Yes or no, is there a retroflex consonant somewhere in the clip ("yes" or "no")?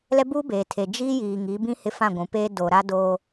no